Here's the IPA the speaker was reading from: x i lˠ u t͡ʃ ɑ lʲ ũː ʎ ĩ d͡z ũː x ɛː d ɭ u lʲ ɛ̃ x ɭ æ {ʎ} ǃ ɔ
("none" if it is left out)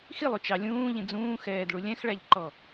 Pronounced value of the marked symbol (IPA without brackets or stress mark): ʎ